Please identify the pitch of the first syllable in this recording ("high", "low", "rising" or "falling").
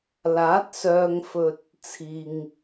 rising